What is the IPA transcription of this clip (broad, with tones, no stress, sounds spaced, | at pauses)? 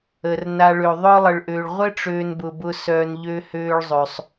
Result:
əː˩ r n a˨ ɭ ø˩ ðˤ œ˥ lˠ ə˨ ɭ ʔ øː˨ ɭ ʁʷ ɘ˥ ʈ͡ʂ øː˨ n b ʊ˩ b ʊ˨ s œː˩ n ʎ ø˨ h øː˨ ɭ zˤ ø˩ sˤ